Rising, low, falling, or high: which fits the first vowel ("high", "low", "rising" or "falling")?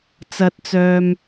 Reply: low